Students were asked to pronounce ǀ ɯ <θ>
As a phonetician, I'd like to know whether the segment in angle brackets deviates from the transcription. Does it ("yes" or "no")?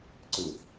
no